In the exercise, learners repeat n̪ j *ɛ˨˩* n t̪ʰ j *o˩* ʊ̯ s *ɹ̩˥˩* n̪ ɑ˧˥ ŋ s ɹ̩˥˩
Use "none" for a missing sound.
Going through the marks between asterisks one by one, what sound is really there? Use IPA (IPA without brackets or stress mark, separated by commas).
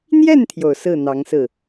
ɛ˥˩, o˩, ɹ̩˥˩